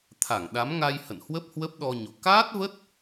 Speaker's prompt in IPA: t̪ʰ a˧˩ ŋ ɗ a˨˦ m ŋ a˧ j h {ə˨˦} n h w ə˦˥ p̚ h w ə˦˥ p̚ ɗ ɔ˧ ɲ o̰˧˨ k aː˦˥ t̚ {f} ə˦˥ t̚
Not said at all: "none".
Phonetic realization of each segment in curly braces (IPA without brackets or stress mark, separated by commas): ə̰˧˨, v